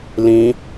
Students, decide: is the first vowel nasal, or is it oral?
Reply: nasal